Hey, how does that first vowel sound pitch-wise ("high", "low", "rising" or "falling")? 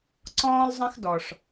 high